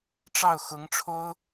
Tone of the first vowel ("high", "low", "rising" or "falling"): falling